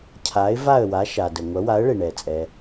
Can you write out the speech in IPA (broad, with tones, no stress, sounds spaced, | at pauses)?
cʰ a˨˥ ɪ̯ v a˦˨ ə̯ w a˨˥ ʃ a˨ d ə˨ ŋʷ ɐ˨˥ w a˨˥ ə̯ ɭ e˨ ɳ ɛ˨ t͡sʼ ɛ˨